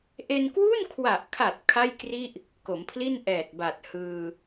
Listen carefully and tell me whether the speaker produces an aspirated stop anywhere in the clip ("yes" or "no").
yes